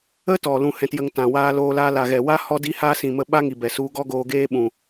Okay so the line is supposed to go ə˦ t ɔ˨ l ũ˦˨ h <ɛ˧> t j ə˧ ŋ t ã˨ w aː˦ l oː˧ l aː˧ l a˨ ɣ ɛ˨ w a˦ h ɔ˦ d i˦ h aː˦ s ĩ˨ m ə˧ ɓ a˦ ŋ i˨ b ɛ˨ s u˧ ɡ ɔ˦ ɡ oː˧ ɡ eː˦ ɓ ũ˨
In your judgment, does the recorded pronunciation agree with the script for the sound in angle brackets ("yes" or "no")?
no